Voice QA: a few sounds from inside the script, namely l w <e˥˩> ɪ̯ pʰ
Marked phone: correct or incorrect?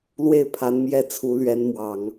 correct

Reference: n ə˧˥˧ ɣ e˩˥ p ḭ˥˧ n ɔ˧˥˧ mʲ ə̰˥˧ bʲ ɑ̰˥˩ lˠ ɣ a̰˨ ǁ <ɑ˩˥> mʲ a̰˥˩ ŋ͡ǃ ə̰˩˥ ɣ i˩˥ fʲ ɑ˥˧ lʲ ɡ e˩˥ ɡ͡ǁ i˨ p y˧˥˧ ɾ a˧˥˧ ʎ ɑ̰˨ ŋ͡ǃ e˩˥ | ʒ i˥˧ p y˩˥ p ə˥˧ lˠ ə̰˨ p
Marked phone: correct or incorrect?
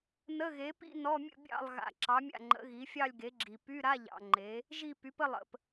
correct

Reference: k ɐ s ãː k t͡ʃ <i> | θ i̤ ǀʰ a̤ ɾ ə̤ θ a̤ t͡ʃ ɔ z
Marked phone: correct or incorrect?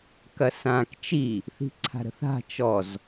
correct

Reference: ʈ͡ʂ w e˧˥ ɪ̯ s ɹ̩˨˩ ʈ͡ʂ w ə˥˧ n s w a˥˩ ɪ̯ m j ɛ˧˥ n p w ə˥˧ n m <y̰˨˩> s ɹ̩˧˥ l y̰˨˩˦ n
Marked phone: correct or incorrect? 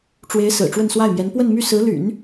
incorrect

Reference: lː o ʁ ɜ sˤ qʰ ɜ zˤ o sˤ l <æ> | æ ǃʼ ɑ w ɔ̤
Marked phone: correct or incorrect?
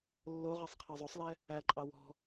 incorrect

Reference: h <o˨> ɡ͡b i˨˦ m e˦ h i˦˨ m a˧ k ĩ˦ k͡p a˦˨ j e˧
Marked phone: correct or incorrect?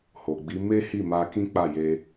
correct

